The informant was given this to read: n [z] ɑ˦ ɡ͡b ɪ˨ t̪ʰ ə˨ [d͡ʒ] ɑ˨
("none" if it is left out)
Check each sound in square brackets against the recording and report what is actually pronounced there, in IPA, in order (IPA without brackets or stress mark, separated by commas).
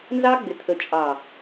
z, t͡ʃʼ